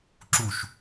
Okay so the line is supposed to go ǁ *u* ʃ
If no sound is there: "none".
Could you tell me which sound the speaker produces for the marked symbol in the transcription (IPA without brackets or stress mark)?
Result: u